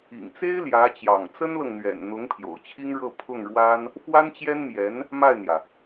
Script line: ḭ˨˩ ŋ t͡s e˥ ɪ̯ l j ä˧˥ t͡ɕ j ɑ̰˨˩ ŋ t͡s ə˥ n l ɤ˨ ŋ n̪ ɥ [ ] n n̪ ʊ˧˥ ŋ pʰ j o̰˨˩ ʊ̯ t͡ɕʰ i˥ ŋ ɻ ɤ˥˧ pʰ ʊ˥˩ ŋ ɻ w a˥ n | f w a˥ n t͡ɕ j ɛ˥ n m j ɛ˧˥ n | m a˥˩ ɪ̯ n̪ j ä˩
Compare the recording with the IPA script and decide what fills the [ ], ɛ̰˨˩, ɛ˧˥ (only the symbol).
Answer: ɛ̰˨˩